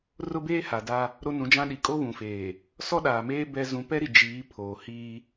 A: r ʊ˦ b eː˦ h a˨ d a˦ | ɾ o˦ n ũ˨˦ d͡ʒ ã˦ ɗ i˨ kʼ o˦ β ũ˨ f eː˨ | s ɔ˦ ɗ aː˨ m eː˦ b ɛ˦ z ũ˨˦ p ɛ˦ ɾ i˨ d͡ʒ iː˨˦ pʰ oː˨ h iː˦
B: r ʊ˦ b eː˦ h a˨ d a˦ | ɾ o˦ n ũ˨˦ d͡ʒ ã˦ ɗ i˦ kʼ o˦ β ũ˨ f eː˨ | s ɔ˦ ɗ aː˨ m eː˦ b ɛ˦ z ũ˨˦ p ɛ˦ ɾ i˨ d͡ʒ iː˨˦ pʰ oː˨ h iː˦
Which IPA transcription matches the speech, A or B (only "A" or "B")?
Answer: A